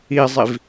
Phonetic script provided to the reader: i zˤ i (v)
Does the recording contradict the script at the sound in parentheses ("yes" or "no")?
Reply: no